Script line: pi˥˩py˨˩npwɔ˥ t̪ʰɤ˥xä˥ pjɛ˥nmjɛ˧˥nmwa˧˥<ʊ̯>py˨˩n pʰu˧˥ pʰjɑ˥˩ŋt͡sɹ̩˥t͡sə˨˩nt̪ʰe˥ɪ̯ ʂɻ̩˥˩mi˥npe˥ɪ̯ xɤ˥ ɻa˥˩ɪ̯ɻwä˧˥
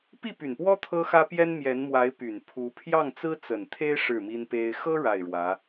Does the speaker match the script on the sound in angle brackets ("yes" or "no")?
no